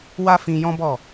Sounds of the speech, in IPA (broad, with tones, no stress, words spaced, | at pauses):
wa˦fĩ˧ jɔ̃˦bɔ˦˨